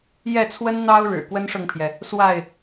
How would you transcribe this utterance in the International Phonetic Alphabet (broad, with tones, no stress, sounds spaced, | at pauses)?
j ɛ˥˨ t͡sʰ w ə˦ n n̪ ɑ˦ ʊ̯ ɻ ɻ̩˨˩ k w ə˦ n ʂ ɤ˨ ŋ pʰ j ɛ˩ | s w a˥˨ ɪ̯